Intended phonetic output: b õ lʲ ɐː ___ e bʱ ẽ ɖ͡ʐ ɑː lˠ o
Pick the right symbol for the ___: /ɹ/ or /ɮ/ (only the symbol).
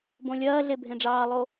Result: ɮ